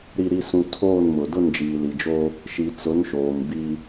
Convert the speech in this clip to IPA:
ɾi˨ɾi˨sũ˨ tʰoː˦˨nmʊ˨ dʊ˦˨nd͡ʒiː˨li˨d͡ʒo˦ | ʃi˨t͡sʊ˨˦nʃoː˨m bi˦

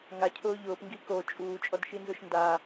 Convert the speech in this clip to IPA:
ŋacʰʊː ʎʊːpŋɡi ko t͡ʃʼuːt͡ʃʼɔdʃinzʊʃ nda

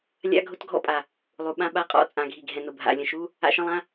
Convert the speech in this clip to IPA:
lʲa̰˧˥˧ɡʱʊ˧˥˧tɡʱɔ̰˧˥˧pʼa˩ | lˠu˩ɓã˧˥˧ɓa˧˥˧qʼɔ̰˧˥˧ t͡sʼã˩ɡʱi˩ɡʱɛ̃˩ nʊ˩bʱa̰˩ lʲə̃˩ʃu˧˥˧ | a̰˧˥˧ʃə̃˧˥˧lˠã˧˥˧

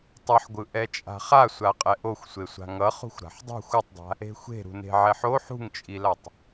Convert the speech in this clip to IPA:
tˤʌħɡʷɯʔɛ t͡ʃʼa̤χasʷa qʼɛʔoxʷsʷe sʷa̤ŋʌ χṳxʷɾa̤ħdˤṳ xʷʌtˤdˤa̤ | e̤xʷe̤ ɾṳne̤ʕɛħo ħṳŋt͡ʃʼilatˤ

